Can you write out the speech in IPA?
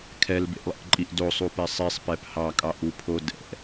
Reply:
kʰɛlbḛʔlˠḛʔǃʼiʔ dosˤupɛ sˤisˤpɛp hɑkʼɑʔupʰo dɛ̰

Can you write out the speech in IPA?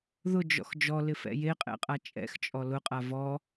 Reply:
ðʊd͡ʒɔ̰x d͡ʒɔlɪfɛ̰ jeqʼɛ̰qʼa t͡ʃʼɛ̰xt͡ʃʼɔ lʊqʼa vɔ

